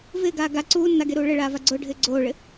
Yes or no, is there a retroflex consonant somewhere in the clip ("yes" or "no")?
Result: yes